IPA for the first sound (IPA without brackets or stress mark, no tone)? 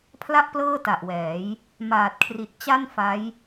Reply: pʰ